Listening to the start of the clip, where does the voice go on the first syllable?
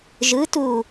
rising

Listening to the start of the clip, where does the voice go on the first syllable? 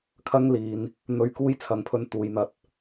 high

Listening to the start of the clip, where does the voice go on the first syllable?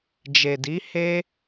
low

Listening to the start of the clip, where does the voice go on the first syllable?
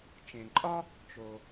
low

